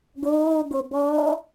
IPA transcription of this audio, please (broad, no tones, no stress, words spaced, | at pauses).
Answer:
ɡoːɡo bɔː